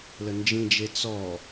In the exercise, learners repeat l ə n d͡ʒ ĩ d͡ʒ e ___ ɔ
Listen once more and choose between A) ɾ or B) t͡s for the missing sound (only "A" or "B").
B